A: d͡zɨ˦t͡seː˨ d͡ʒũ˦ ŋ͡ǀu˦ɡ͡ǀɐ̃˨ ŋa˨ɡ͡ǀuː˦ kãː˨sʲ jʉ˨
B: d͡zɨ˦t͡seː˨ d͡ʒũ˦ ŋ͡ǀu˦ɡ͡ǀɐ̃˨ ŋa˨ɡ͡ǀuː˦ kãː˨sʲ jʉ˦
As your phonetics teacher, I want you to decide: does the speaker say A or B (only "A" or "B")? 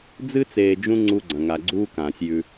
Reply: B